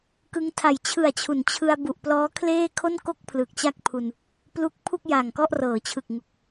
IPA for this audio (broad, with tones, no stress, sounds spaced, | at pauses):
k ɯ˧ ŋ tʰ a˨˩ j t͡ɕʰ ɯ˨˩ a̯ t͡ɕʰ u˩˦ n t͡ɕʰ ɯ˧ a̯ b u˨˩ ʔ p l ɔː˦˥ kʰ l eː˥˩ kʰ o˥˩ n k o˥˩ k̚ pʰ l ɯ˨˩ k̚ t͡ɕ a˥˩ k̚ pʰ u˧ n | p l u˦˥ k̚ pʰ u˥˩ k̚ j a˨˩ ŋ k ɔ˥˩ ʔ r ɤː˩˦ t͡ɕʰ ɯ˨˩ k̚ ŋ u˨˩ k̚